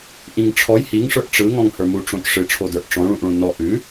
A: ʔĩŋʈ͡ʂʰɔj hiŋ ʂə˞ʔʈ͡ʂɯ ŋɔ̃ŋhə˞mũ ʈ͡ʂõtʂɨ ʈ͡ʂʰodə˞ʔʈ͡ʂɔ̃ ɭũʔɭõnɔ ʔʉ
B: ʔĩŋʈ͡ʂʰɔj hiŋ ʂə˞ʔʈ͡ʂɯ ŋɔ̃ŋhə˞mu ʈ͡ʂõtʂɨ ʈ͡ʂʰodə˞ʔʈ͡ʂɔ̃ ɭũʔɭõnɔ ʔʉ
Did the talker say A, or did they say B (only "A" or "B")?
B